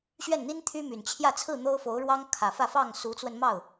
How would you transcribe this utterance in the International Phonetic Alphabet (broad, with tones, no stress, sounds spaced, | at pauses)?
ɕ ɥ ɛ˥˩ n n̪ i˥ n t̪ʰ y˥ m y˨˩ n t͡ɕʰ j ä˥˧ t͡sʰ ɹ̩˥˩ n̪ o˥ ʊ̯ f o˧˥ ʊ̯ ɻ w ɑ˥ ŋ kʰ ä˨˩ f ä˥˧ f ɑ˥˩ ŋ s u˧˥ t͡s w ə˧ n m ɑ˥˩ ʊ̯